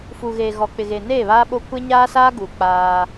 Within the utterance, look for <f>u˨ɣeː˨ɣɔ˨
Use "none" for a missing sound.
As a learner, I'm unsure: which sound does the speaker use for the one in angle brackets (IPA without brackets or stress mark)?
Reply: f